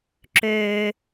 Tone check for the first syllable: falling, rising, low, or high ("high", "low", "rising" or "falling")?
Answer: low